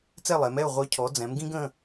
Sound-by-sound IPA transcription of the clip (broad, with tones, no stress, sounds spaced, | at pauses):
t͡s ɛ˥˨ lˠ ɛ˩˧ m ɛ˥˨ ʊ̯ ʁʷ œ˨˥ cʰ ɔ˩˧ d͡z ɛ̃˩˧ m ɡ ĩ˦ ɡ ə̃˩˧˩